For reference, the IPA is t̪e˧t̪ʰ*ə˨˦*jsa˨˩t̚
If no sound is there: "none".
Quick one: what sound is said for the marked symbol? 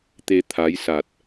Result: a˨˦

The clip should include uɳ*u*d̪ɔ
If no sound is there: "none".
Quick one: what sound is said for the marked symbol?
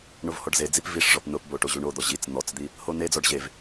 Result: o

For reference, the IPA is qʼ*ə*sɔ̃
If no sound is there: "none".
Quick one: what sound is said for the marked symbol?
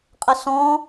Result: ə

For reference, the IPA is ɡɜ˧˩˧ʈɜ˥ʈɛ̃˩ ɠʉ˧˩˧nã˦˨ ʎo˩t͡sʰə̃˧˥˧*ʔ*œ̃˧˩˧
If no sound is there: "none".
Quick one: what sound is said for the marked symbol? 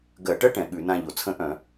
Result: ʔ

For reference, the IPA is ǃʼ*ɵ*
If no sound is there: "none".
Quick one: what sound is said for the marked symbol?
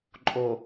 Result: o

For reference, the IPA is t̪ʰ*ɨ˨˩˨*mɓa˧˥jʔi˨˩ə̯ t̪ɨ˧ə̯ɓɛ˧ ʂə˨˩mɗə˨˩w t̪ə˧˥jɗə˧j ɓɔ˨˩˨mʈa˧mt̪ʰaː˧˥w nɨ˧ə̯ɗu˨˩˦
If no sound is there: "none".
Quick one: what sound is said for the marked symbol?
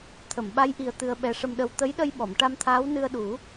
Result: ə˨˩˨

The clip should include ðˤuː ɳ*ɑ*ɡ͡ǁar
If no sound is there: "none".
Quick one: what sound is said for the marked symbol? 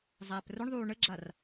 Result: ə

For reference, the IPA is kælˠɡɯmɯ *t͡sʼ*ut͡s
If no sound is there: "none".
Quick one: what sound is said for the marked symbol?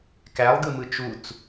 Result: t͡ʃ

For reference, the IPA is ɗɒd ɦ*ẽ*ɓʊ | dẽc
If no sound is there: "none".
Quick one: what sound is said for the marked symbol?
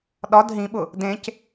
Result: ĩ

